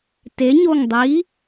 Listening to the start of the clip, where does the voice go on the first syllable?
rising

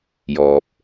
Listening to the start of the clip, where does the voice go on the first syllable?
low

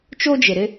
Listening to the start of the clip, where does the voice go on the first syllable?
high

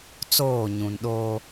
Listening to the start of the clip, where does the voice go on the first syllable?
falling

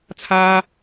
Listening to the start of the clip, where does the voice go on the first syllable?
high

